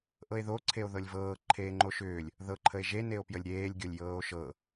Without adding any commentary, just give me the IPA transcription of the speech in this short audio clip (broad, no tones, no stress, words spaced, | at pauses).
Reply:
ʔɤe̯ðo ǀʰeo̯ðɤlʲvɤː ǃʰeːŋ͡ǃoʃʏːlʲ | ðɤ ǃʰəe̯ʒe neo̯pjəlʲɾʲeːlʲ ɡʲolʲjɤːo̯ʃɤ